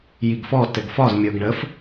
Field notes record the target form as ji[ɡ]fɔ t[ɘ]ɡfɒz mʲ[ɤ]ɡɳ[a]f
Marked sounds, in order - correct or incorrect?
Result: correct, correct, correct, incorrect: ə

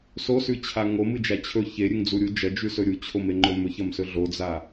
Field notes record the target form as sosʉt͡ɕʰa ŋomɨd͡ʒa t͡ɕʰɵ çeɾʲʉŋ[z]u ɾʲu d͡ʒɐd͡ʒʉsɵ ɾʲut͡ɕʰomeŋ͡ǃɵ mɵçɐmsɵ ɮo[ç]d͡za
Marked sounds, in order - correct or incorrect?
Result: incorrect: d͡z, incorrect: none

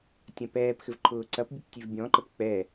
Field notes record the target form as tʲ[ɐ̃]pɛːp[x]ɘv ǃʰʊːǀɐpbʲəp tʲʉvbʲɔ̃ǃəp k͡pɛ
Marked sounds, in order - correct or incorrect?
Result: correct, correct

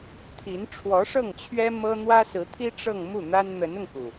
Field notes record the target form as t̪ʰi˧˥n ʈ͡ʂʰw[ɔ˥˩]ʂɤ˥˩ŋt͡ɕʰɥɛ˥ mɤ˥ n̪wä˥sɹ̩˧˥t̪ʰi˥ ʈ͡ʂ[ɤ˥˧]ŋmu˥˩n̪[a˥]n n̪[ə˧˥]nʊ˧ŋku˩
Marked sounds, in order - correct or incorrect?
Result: incorrect: ɔ˧˥, correct, correct, correct

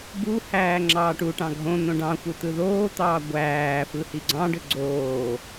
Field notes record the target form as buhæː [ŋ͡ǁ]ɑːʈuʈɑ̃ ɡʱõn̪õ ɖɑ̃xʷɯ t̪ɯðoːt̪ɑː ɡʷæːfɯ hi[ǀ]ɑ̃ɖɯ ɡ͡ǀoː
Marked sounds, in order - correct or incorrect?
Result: correct, incorrect: ɡ͡ǀ

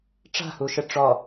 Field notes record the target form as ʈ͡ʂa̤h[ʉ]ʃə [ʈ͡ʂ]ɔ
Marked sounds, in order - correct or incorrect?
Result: incorrect: u, correct

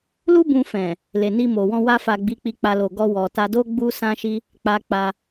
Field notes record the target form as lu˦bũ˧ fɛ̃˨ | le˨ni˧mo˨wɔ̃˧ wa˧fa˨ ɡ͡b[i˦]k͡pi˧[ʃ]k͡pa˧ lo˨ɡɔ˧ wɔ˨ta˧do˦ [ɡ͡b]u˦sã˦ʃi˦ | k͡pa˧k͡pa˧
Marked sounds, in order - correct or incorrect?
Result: incorrect: i˨˦, incorrect: none, correct

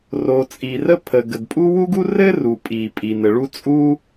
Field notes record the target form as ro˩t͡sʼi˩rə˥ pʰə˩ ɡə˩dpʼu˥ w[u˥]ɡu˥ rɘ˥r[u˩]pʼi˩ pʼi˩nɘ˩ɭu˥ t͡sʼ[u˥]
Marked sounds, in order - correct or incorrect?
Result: correct, correct, correct

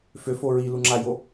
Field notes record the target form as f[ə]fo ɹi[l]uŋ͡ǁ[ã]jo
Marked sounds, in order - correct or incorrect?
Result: incorrect: ø, correct, incorrect: a

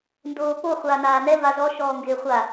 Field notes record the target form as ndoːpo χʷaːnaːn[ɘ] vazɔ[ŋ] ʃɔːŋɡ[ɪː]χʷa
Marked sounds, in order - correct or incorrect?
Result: incorrect: ɛ, incorrect: none, correct

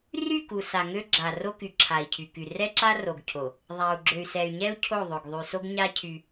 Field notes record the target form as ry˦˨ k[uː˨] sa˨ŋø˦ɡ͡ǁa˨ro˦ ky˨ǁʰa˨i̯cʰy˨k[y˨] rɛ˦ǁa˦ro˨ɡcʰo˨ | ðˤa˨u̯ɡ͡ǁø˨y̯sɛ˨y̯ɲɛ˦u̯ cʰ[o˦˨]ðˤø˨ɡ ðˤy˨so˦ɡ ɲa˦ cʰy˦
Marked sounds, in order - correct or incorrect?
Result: incorrect: u˨, correct, correct

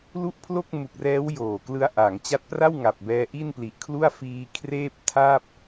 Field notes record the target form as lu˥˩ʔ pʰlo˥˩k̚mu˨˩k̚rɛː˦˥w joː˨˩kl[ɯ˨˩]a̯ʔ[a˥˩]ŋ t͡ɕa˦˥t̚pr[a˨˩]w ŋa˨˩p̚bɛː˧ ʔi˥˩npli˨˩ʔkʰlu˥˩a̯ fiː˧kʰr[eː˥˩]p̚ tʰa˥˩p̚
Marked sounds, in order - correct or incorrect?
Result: incorrect: ɯ˦˥, incorrect: a˩˦, incorrect: a˥˩, correct

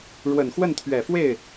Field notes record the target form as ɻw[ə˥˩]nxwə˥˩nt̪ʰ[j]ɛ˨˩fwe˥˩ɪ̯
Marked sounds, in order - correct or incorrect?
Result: incorrect: ə˨˩, incorrect: ɥ

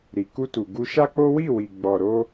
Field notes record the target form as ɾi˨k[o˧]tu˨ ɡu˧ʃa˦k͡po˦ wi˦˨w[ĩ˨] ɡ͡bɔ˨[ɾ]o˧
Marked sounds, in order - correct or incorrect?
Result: incorrect: u˧, incorrect: i˨, correct

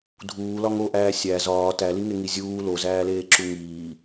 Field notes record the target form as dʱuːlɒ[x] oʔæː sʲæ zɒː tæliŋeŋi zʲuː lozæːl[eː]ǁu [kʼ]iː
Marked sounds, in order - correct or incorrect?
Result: incorrect: ŋ, correct, incorrect: ŋ

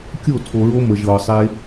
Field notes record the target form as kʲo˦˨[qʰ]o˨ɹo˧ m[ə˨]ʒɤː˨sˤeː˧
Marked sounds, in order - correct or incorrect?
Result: incorrect: tʰ, correct

